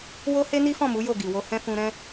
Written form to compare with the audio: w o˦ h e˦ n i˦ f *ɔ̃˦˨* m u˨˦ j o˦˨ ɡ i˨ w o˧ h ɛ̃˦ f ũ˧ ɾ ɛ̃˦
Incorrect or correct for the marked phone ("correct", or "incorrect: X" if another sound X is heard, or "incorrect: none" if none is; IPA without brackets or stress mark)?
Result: correct